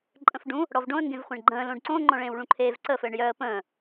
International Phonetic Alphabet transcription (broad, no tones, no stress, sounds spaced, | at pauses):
ǃʼ ə̃ f ɖ ũ | ɽ ɔ v ɖ õ ə̯ ŋ ɡ ẽ v χʷ ẽ ɳ ɡ͡ǃ ə̃ː l õ ɖ ǀ õ ŋ͡ǃ ɔ̃ ɭ ẽː w ɭ ũ ǃʰ eː v ǀ ə f ɘː ɳ j œ ə̯ p ə̃ː